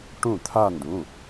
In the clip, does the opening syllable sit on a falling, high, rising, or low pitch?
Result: falling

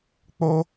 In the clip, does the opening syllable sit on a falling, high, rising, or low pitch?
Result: high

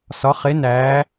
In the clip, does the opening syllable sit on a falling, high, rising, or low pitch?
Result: rising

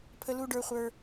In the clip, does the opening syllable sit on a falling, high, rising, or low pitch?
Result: high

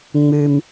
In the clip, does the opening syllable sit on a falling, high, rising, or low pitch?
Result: low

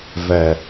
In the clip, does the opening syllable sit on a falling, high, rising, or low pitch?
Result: low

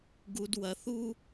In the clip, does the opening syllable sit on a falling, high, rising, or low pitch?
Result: low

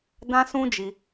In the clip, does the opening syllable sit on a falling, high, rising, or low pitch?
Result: high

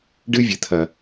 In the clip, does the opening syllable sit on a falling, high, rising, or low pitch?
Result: high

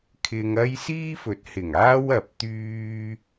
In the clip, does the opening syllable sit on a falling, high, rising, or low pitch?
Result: low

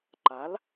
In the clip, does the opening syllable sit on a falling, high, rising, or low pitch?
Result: rising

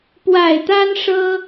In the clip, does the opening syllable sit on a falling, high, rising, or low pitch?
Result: low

